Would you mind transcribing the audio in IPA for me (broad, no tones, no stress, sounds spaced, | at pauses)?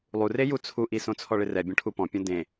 lˠ u r e j u t͡sʰ u ʔ i s õ t͡sʰ ɔ ɭ ɪ r ɛ bʲ õ ʈʰ u p ɔ̃ pʲ õ d ẽ